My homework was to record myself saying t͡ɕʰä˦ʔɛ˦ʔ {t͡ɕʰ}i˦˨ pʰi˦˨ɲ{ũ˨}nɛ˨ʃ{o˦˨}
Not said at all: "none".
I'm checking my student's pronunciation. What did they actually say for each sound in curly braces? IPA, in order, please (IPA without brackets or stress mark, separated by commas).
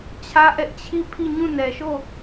t͡ɕʰ, ũ˦˨, o˦˨